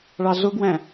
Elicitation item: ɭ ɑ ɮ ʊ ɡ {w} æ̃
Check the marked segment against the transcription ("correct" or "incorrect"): correct